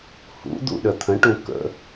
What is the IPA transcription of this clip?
h ṵ d̪ ṵ ɗ ə t̪ʰ ə̃ ʈ ũ k ə̰

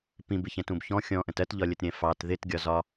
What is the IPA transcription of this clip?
p ĩ b ɪ ç ɛ̃ t ũ b ç ɔ̃ xʲ ɔ̃ ʔ ə̃ t ɜ t ʎ ɒ lʲ ə t ɾʲ ɛ̃ f ɑ t ð ɪ t ɡʲ ɒ z ɒ

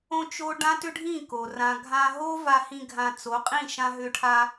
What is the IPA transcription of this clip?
õ˧ t͡ʃ o˦ ɖ ã˦ t ʏ˦ ɖʱ ĩ˦˨ k o˨ r ã˨ ɡʱ ã˧ ɦ o˦ v a˧ h ĩ˧ ɡʱ ã˧ t͡s o˨˦ qʼ ĩ˦˨ ʃ ã˧ ɦ ʏ˧ ʈʰ a˧

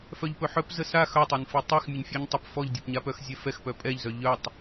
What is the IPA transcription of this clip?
f œ ʎ p ɵ ħ œ p z ə s a x œ tˤ œ n f i tˤ ɛ x mʲ ə ɲ fʲ œ ɲ tˤ ə p f ɔ ʎ dʲ ɔ p ɲ a p œ x zʲ ɛ f ɛ x p œ pʼ ɛ ʎ z œ ʎ œ tˤ

